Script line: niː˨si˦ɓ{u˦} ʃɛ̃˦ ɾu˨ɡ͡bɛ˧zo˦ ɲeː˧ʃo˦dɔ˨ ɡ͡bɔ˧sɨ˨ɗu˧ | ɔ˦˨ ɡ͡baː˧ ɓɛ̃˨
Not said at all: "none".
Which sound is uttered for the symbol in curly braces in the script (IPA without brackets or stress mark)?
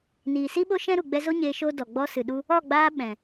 o˦